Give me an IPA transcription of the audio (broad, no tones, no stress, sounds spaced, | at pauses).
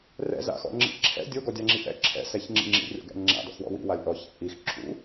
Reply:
r ɛ̰ z a̰ x ɔ̰ ŋ͡ǁ ḭ ǁʰ ɛ̰ dʲ o ɡ ɔ dʲ a ŋ͡ǁ i ʔ ɛ̰ ǁʰ ɛ̰ s ɛ ç ŋ͡ǁ ḭ ŋ͡ǁ ḭ rʲ ɔ̰ ɡ ɛ̰ ŋ͡ǁ a̰ d ɔ̰ x w ɔ̰ w ḭ w a lʲ ʔ ɔ ç ɛ̰ ʔ i x ǁʰ ṵ